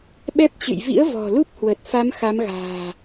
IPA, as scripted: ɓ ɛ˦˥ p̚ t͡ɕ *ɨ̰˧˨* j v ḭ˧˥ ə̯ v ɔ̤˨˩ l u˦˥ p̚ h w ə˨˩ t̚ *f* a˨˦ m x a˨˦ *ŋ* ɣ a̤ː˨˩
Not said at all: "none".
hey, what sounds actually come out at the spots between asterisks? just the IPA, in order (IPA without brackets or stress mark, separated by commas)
ɨ̰˧˨, f, m